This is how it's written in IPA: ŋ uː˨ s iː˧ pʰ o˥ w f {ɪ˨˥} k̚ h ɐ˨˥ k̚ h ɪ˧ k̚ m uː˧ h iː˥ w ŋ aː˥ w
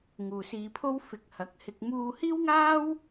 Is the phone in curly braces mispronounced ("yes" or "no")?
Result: no